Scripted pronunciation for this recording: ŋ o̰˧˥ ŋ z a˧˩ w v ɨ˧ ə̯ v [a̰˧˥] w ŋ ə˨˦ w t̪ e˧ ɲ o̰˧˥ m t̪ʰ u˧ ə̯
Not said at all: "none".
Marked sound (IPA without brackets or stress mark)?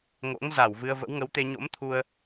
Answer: ə̰˧˥